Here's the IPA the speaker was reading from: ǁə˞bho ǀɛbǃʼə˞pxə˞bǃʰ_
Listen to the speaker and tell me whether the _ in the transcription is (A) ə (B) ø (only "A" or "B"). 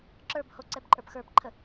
A